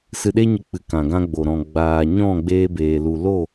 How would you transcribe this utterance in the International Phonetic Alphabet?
s ɨ˧ ɗ e˦ ɲ ə˧ k͡p ɨ˨ k ã˨ ɡ ã˧ ɡ͡b o˨ ɾ ɔ̃˨ ɡ͡b aː˨ ɲ ɔ̃˦˨ ɡ͡b eː˧ b eː˨ l u˨ l o˦˨

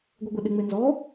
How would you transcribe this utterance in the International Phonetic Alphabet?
ɡʷ ɪ ɡʷ e ɗ ɪ ŋ͡m e n z ɔ

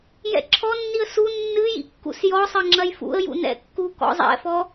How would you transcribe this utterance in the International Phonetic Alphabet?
j ɛ̰ ǁʰ ɔ nː i ə̯ s u nː ɨ j ḭ kː ṵ s j ɔ sˤ ɘ ŋ͡ǁ ɐ j f ṵ ə̯ j ṵ n ɛ̰ kː u k ɔ̰ zˤ ɛ̰ f ɔ

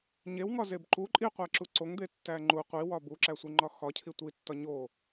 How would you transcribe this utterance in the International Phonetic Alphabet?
ɲ e w ŋ ɒ z e b ǃ u ǃʼ i qʷ æ ǁ u ǀ o ŋ d̪ e tː æ ŋ͡ǃ u qʷ i w ɒ b u ǁ æ sʷ i ŋ͡ǃ ɒ x ɒ cʰ i tʷ i tː ɒ ɲ o

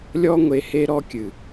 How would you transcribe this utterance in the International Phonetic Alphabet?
lʲ ɔ˦ ŋʷ e˧ h e˦ ɾ ɔ˧ kʲ ɨ˨

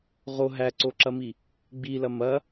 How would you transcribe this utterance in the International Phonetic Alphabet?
ʁ o ɦ æ ǀ o ǁ ɐ m i | ɡ͡b i l ɐ m ɐ

